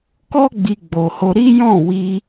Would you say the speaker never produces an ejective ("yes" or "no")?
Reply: yes